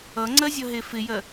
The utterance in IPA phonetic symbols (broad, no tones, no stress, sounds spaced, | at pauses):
ʌ ŋ͡ǀ ɜ zʲ ʌ ɦ e f ɪ j ɜ